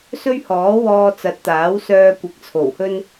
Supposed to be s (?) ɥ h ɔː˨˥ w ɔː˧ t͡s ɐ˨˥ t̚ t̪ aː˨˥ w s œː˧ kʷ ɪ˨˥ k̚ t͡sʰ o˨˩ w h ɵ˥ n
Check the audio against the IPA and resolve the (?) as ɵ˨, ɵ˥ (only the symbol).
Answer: ɵ˥